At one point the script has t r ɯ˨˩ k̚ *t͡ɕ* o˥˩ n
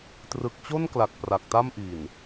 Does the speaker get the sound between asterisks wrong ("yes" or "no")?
no